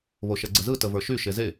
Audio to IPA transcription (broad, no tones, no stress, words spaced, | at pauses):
βoʃɛɡ͡ǀəzɯ təvə˞ʃy ʃeze